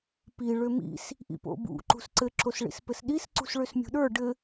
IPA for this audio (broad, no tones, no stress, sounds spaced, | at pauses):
p i ɭ ø m ḭ s | ʔ ḭ p o̰ b ṵ ǃ ṳ s ǀ ɘ ǁ o s ɭ ḭ s p ɘ s ɗ i s ǀ ṳ s ɭ ø s mʲ ṳ ɗ ə˞ ɖ ɘ